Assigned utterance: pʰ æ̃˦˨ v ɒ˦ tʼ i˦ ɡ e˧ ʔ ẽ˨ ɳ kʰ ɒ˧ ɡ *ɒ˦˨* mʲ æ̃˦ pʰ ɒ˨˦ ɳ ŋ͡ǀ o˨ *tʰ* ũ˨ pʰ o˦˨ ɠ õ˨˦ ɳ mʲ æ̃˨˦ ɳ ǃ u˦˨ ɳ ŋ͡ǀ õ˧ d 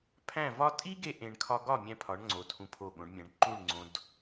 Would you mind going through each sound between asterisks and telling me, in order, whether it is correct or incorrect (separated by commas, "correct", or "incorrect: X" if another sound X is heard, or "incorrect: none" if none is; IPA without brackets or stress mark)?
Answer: correct, correct